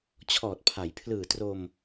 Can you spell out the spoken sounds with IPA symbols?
t͡ɕʰɔː˨˩t̚pʰa˩˦j pʰlɯː˨˩tro˧m

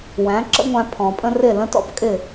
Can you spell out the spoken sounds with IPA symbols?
wæ̃˩˥ ǁə̰˥ŋʷæ̃˧ pʰɔ̃˩pʼə̃˥rɪ˥˩ lə̃˥tɔ̰˧p kʼɪ˥˩

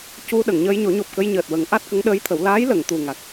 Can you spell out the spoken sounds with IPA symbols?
cu˧ ɗə˨˩˨ŋɲəː˧jɲo˨˩˦ɲo˨˩p̚ kə˧jɲəː˨˩t̚ wə˨˩˦ŋ ʔa˦˥t̚kə˧˥ŋɗəː˧˥jt̪ʰə˨˩˦w laː˧˥jlə˨˩˨ŋ t̪u˨˩ŋa˨˩k̚

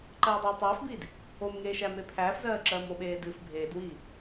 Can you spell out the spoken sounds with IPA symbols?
ǃɜːdˤɜɪ̯tˤæːfbiːd | omŋeː ʃæmepʰæːfzɜː ǁɜːmoɓeː dɨːfbʱeːdwiː

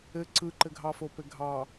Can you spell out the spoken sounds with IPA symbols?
ɘ ǀɯǃɘɡʱɑfo pɘɡʱɑ

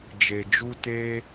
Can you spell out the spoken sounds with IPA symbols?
d͡ʒe˨d͡ʒu˧teː˧

